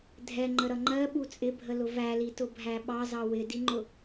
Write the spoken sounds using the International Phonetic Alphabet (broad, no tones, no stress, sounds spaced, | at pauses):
dʱ ɛ ŋ͡ǃ ə ɾ ʌ ŋ͡ǃ ɜ ɓ u t͡sʼ ɪ bʱ ə l ʊ v æ l i t ʊ bʱ æ ɓ ɑ z ɑ w ɪ d i ŋ͡ǃ ʊ